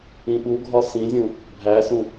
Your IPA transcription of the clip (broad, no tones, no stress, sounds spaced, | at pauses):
ĩ ɓ u ɡʱ ɒ s ĩ zʲ ũ | bʱ æ s ũ